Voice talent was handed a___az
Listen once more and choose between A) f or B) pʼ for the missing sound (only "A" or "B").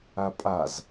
B